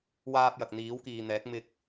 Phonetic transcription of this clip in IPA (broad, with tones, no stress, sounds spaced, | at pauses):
w aː˧ p̚ j ɐ˨ k̚ n̪ iː˨˥ w k iː˨ n̪ ɛː˨˥ k̚ m ɪ˧ k̚